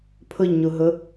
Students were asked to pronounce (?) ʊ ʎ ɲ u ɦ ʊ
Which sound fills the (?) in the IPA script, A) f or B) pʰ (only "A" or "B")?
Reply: B